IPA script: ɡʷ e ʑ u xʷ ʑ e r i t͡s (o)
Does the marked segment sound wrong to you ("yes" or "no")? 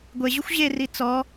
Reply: yes